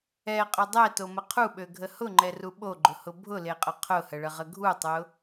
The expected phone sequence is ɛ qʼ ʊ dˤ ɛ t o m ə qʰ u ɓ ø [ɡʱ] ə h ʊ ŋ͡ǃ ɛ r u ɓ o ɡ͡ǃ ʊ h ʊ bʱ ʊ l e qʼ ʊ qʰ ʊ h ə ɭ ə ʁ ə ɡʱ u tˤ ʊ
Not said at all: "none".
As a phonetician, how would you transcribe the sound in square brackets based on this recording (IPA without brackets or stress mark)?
ɡʱ